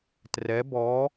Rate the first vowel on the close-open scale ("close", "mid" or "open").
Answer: mid